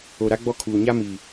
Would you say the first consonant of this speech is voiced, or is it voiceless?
voiced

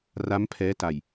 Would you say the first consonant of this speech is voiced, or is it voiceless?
voiced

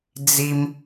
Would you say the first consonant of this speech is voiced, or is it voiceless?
voiced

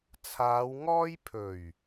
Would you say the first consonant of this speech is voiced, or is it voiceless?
voiceless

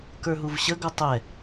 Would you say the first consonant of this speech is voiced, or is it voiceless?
voiceless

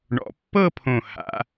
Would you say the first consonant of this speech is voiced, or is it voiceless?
voiced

